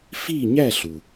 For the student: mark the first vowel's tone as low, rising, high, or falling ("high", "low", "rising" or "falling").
falling